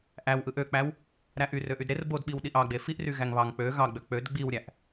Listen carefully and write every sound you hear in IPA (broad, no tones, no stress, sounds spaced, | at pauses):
ʔ æ w ʔ ɯ ʔ ø k͡p æ w | ɾ æ ʔ y r ø ʔ y d ɾ e r b o d ɓ i w ɗ i ʔ ɑ ɡ͡b e f i ʔ r y ɣ æ ŋ β ɑ ŋ k͡p ø ɣ ɑ ɡ͡b ø k͡p ø d ɡ͡b i w ɾʲ æ ʔ